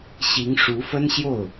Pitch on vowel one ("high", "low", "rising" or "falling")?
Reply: rising